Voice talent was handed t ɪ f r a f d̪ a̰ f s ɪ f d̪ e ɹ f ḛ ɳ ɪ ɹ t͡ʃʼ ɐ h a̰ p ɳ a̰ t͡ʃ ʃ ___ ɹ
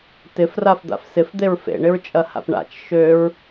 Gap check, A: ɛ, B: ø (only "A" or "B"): B